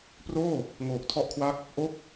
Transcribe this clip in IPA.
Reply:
p r oː˥˩ | ŋ oː˨˩ k̚ tʰ ɔ˦˥ ʔ kʰ w a˦˥ k̚ | ʔ o˥˩ k̚

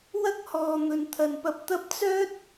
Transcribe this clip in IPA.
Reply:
w ɐ˥ k̚ h ɔː˨ n̪ ɵ˨ n t̪ʰ ɐ˨ n p ɐ˧ p̚ t̪ ɐ˥ p̚ t͡s œː˥ t̚

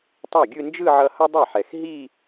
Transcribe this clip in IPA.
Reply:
tˤ a˥˩ ɡʲ ɯ˥˧ n d͡ʒ ɯ˥˧ ʕ ʌ˧ h ʌ˥ dˤ e˥˩ ħ ɛ˨˩ x ɦ i˥˧

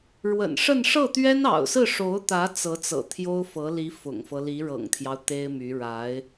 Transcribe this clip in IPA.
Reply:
ɻ w ə̰˨˩ n ʂ ə˥˧ n ʂ ɤ˥˩ t̪ ɥ ɛ˥ n ɑ̰˨˩ ʊ̯ s ɹ̩˥˩ ʂ o˧˥ ʊ̯ t̪ ä˧˥ t͡s ɤ˧˥ t͡s ɤ̰˨˩ t̪ʰ j o˥ ʊ̯ f ɤ˧˥ l i˧˥ f ʊ̰˨˩ ŋ f ɤ˦ l i˧˥ ɻ ɤ̰˨˩ ŋ t̪ʰ j ɑ˦ ʊ̯ t̪ e˥ ɪ̯ m y˧˥ ɻ a˧˥ ɪ̯

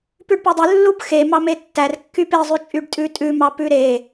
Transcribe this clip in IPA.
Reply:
p ʉ ɖ p o dˤ ʉ lː u b x e m ɑ m e tː æ r kː y p e zˤ ʉ t͡ʃʼ y ɖ tʼ ʉ tʼ ʉ m ɑ p ʉ ɾ e

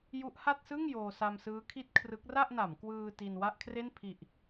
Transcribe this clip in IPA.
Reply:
j u˦˥ ʔ h a˥˩ t̚ s ɯ˥˩ ŋ j oː˧ s a˧ m s ɯː˦˥ kʰ i˥˩ t̚ kʰ r ɯ˦˥ k̚ r a˥˩ ʔ n a˩˦ m k w ɯː˧ t i˧ n w a˥˩ ʔ kʰ r e˥˩ n pʰ i˨˩ ʔ

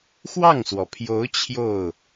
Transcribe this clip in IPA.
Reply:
x w ɑ˥˩ ŋ s w ɔ˩ pʰ j o˧˥ ʊ̯ t͡ɕʰ j o˥˩ ʊ̯

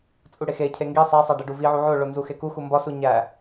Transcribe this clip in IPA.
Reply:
t͡sʼ u ɽ e x e cʰ e ŋ ɡ i sˤ æ sˤ æ ɖ e ɖ u v i ʕ u ʕ o ɭ o n z u x e k u x u m b ɒ s u ɲ æ

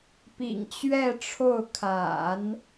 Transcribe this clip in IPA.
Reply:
p ḭ˨˩ ŋ t͡ɕ ɥ ɛ˥˧ ʈ͡ʂʰ o˥˩ ʊ̯ kʰ a̰˨˩˦ n

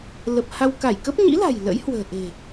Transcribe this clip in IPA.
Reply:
l ə˨˩ p̚ h a˧ w k a˧˩ j k ə˦˥ p̚ ɲ ḭ˧˥ l a̤˨˩ j l ə̰˧˥ j h w ə̤ː˨˩ ʔ e̤˨˩

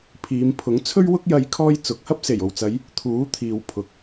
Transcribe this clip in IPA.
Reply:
pʰ iː˨˧ m pʰ ʊ˨˥ ŋ t͡sʰ ɵ˥ ɥ w ʊ˥ k̚ j ɐ˧ j kʰ ɔː˥ j t͡s ʊ˨ k̚ h ɐ˥ p̚ s e˨˩ j o˨ w t͡s ɐ˨˧ j | t̪ʰ uː˨˥ t̪ʰ iː˨ w pʰ ʊ˨ k̚

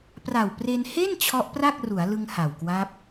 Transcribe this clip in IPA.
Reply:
p r a˨˩ w p r e˧ n h e˥˩ n t͡ɕʰ ɔ˦˥ ʔ p r a˥˩ k̚ r u˩˦ a̯ l ɯ˧ ŋ h a˨˩ w k w a˦˥ p̚

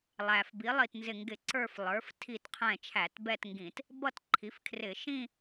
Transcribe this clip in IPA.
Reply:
lˠ æ˩ f b i˩˥ lˠ i˧˩ t n z ɪ˧˩ ŋ ɡ ɪ˧˩˧ ǀ ə˞˥˧ f lˠ ə˞˩˥ f tʰ i˧˩ t qʰ ɛ̃˧˩ t͡ʃʰ æ˧˩˧ t b ɛ˥˧ t ŋ ɡ ĩ˧˩˧ t | b ʌ˥˧ t ǃʰ i˩˥ f kʰ r ɪ˧˩˧ ʃ ĩ˥˧

